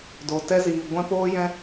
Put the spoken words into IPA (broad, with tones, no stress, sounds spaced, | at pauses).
d o˧ t ɛ˦ z iː˧ ɡʷ ɛ̃˦ p oː˦ j ɛ̃˦